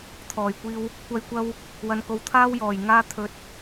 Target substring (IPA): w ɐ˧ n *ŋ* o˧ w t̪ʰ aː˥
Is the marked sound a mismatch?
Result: yes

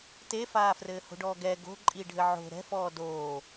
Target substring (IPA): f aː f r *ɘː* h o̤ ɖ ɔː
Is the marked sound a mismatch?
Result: no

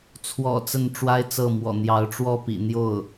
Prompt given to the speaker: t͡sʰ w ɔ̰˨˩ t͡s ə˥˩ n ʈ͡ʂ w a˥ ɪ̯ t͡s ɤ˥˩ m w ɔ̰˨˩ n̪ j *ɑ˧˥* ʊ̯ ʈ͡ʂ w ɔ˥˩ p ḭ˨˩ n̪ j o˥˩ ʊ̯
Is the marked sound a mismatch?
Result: no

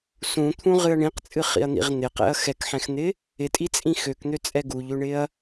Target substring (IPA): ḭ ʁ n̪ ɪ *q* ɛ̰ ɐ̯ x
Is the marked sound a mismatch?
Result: no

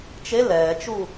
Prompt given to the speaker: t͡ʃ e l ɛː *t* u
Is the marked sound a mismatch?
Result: yes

